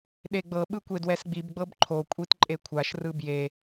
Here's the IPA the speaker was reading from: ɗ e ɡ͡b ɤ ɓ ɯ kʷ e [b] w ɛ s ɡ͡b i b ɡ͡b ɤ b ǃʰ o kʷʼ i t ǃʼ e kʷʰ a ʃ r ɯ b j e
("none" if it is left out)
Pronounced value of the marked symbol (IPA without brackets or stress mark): d